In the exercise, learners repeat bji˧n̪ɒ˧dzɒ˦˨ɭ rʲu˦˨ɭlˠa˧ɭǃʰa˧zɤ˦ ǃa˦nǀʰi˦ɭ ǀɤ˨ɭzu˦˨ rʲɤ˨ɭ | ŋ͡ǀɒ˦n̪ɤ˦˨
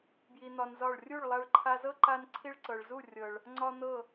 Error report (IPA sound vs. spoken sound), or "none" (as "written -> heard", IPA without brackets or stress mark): d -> n